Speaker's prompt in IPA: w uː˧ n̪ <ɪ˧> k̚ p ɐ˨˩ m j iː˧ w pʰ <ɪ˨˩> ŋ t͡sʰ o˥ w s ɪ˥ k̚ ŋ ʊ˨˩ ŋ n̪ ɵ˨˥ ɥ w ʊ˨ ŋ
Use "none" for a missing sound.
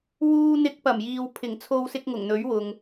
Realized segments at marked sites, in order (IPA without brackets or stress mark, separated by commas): ɪ˧, ɪ˨˩